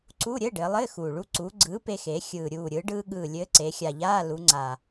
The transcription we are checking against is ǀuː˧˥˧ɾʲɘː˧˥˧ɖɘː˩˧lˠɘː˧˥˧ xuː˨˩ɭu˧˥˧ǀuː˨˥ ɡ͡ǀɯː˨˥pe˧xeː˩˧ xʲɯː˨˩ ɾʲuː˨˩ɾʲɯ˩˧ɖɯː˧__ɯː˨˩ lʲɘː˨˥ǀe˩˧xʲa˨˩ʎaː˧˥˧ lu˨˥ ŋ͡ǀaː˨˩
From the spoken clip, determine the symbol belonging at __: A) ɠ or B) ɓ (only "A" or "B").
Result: A